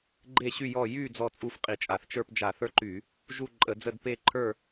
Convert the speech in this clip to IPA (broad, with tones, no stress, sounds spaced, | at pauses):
ɡ͡ǃ e˦˨ ɕ y˦˨ j ɔ˦˨ j y˦˨ d͡z ɔ˦˨ t͡sʼ u˦˨ f qʼ i˧˩˧ t͡ʃʼ a˧˩˧ θ t͡ʃ ə˞˦˨ p d͡ʒ a˧˩˧ θ ə˞˦˨ ǃ y˧˩˧ | ʒ u˦˨ ǃʼ ə˧˩˧ d͡z ə˦˨ d p e˦˨ ǃʰ ə˞˦˨